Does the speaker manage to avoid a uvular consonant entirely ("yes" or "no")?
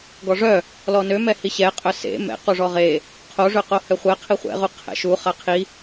no